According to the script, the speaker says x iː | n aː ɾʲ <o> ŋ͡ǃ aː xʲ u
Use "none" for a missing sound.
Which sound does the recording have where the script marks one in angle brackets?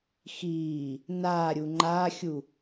u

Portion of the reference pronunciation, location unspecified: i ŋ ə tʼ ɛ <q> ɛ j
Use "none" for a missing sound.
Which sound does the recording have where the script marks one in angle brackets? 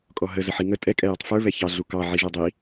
kʼ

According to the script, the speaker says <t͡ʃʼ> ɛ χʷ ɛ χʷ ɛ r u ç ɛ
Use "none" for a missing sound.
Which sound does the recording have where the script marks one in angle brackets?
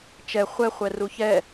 t͡ʃ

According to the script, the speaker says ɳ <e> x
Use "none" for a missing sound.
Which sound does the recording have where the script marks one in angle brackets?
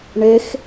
e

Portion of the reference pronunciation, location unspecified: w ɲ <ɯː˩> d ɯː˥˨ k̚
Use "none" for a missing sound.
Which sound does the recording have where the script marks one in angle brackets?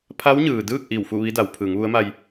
ɯː˩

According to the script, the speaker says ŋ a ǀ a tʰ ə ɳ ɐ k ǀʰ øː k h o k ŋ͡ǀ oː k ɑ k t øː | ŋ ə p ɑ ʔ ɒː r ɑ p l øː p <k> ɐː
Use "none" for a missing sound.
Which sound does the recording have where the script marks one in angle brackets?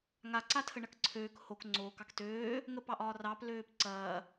ǀ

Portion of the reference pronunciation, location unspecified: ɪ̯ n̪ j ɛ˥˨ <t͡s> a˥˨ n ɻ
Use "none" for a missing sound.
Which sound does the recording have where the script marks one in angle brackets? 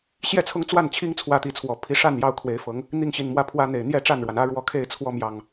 ʈ͡ʂ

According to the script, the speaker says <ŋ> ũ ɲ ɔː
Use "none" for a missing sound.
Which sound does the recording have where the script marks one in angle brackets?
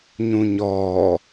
ɲ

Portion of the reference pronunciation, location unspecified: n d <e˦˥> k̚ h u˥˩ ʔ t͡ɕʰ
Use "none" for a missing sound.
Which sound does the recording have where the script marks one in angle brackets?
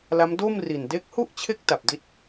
e˦˥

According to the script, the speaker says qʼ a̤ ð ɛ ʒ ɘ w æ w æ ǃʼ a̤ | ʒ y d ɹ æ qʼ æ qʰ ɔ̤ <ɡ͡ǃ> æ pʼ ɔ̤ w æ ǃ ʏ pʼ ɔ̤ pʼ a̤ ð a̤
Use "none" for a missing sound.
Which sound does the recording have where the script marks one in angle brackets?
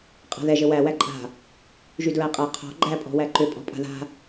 ɡ͡ǃ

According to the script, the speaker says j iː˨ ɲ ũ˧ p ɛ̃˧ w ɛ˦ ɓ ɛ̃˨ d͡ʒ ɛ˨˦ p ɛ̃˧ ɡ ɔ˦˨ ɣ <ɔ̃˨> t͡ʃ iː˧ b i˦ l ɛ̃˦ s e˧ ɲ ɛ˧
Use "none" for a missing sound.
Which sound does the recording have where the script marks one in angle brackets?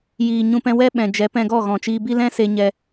ɔ̃˨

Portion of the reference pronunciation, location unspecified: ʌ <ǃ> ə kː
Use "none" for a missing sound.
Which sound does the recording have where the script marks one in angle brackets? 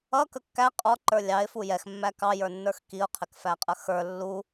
k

